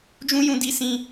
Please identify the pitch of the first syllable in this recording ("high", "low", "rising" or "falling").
high